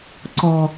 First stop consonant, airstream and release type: click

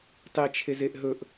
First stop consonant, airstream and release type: plain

